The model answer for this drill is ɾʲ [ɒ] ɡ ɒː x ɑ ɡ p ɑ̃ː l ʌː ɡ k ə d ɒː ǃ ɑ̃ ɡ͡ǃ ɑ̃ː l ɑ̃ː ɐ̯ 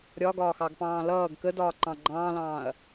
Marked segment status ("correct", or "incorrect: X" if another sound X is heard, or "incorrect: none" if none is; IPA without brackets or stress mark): correct